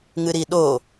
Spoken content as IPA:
ŋɨɾiɗo

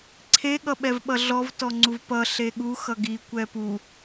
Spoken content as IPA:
ǀʰe ɠʌɓɛvɓʌɮɔv tɔŋ͡ǀuvpʌ ɬeɠu xʌɡi kʷɛpu

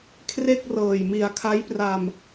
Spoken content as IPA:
kʰre˥˩k̚ rɤː˨˩j mi˩˦a̯kʰa˦˥j pra˧m

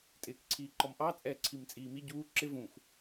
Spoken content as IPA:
tʼɪːkǀʰiːǃɔmʔɑ t͡sʼɛːǀʰimt͡sʼiːmi ɟuː ǁɪ vũx

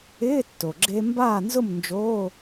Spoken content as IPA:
ɪː˧˥˧tːo˩ɡ͡ǁe˧ mbaː˥˨ nzʊ˥˨mnd͡ʒoː˧˥˧

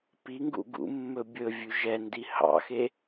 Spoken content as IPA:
piŋɡṵ ɡṵmːɵ bʲɵ vʲʉʒɛndi hɑ̰xe

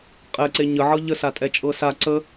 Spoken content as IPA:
qʼɛǀe ɲəʕɤ ʎəsatʼɛt͡ʃʼɤ sa ǀə

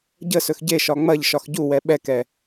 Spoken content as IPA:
ɟəsɵx ɟeʃɒ ŋ͡mɐʎ ʃɒxɟuwɛ ɓɛkɛ

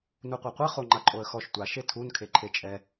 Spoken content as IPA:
nuqʷeqʷɛ χoŋ͡ǃaǃʼoə̯xɔʃ tʷa ʃetʰun kʰeǃʰet͡ʃʼɛ

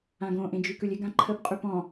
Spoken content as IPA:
ãɡõʔẽ d͡ʒykʉlʲɪɡã ǃʰəpqʼy pɔ̃

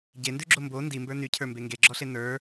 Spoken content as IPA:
ɟendʉɡ͡ǁo mbo ndimbə˞ nycʰə˞mbe ŋɡeɡ͡ǁɔɬe nə˞

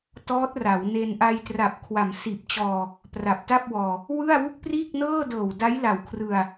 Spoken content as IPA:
tɔː˦˥t̚ra˩˦wne˧n ʔa˧jtra˨˩p̚ kʰwa˩˦msiː˨˩p̚t͡ɕɔː˧ | pra˨˩p̚ta˥˩p̚wɔː˧ | wɯ˥˩a̯wu˥˩k̚ priː˥˩k̚nɤː˥˩dɤː˨˩w da˦˥jla˨˩wkʰrɯ˧a̯

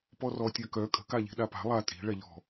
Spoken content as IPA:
pɔrɔ tʲœkœ kʼə̤kaʎi̤ ɗapa̤ lˠa tʼi̤ ɭɛʎɔ̤

